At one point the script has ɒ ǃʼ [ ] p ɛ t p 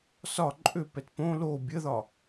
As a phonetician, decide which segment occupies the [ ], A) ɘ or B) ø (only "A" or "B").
B